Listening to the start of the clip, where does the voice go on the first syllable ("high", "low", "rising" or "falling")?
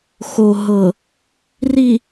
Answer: low